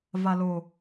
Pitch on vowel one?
low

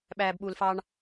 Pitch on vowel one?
low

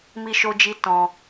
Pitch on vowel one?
high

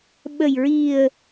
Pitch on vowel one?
low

